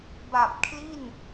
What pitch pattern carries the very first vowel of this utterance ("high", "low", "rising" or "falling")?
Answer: low